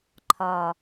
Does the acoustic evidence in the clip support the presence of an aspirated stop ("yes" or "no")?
yes